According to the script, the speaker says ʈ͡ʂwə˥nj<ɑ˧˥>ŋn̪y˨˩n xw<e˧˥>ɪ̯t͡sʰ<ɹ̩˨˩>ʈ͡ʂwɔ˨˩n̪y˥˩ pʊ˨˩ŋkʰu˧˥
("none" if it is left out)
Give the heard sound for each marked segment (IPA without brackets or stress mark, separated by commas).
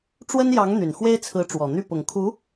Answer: ɑ˧˥, e˥, ɹ̩˧˥